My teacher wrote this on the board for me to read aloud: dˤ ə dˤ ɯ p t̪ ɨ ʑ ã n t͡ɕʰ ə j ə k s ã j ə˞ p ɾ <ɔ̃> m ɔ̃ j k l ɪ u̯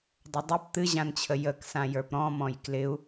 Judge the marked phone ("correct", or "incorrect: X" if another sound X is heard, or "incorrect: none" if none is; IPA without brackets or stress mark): correct